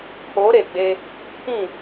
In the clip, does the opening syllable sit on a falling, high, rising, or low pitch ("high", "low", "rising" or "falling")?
rising